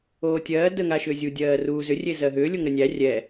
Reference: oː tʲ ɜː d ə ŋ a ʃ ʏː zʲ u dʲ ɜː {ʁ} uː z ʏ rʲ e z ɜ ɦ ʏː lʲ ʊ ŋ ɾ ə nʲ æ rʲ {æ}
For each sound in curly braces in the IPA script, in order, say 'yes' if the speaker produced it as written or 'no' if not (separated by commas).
no, no